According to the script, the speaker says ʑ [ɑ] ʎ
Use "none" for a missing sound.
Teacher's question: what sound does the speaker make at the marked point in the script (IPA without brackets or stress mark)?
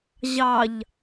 ɑ